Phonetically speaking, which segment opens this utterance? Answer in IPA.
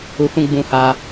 u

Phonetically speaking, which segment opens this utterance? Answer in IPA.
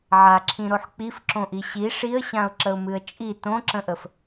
ʕ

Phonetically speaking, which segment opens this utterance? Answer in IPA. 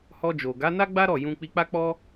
h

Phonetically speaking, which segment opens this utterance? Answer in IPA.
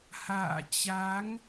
h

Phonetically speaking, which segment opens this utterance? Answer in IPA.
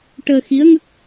ʈ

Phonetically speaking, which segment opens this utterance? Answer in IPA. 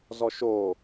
z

